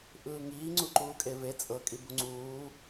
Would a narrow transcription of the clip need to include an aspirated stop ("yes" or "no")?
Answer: no